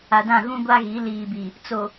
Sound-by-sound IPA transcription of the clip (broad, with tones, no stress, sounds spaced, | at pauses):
a˨ d ã˦˨ ɣ ũ˦ ɡʷ a˦ ɣ i˨˦ l iː˨ b i˨ | t͡s o˨